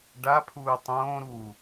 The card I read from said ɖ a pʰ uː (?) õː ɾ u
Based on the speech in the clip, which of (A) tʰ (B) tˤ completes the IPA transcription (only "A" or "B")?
B